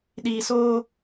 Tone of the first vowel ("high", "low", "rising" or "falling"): low